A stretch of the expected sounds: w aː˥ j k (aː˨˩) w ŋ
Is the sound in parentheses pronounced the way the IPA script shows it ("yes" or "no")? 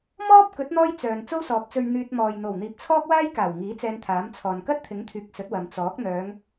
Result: yes